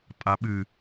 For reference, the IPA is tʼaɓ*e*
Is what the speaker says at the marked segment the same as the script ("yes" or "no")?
no